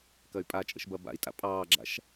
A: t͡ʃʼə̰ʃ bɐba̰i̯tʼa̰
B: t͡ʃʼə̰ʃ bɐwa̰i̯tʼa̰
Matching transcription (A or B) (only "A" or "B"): A